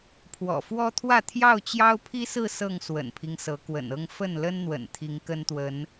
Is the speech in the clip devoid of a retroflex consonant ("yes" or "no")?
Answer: yes